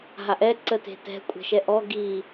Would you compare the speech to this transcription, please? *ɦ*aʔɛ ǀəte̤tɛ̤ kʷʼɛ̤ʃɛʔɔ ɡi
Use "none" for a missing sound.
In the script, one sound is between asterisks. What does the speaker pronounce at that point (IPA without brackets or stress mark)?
ɦ